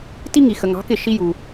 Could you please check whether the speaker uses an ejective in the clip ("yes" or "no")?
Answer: no